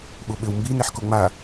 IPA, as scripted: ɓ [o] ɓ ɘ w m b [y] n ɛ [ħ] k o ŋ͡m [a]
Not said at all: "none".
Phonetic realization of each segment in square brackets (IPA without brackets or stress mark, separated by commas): o, i, ħ, a